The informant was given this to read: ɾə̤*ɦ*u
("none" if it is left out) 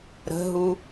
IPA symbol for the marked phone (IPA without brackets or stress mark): ɦ